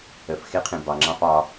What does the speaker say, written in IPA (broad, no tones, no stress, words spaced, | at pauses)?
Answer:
əf xeqʰẽbɑ ŋ͡ǁɑ̃fɑ